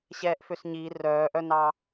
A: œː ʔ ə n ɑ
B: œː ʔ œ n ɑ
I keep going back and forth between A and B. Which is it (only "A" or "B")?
B